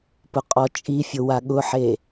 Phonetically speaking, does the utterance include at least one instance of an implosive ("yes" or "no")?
yes